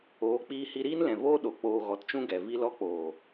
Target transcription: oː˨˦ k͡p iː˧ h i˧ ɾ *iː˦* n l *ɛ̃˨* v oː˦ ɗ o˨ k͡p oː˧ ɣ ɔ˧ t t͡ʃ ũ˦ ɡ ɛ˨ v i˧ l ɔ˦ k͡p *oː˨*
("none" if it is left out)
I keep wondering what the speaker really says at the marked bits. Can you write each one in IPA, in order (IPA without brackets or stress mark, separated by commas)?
iː˦, ɛ̃˨, oː˨